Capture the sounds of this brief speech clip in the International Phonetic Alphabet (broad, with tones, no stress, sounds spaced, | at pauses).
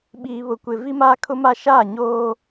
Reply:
ɓ iː˨ β ʊ˨ kʷ ɪ˨ v i˦ m aː˦ kʰ ʊ˦ m a˦ ʃ aː˦˨ ɲ oː˦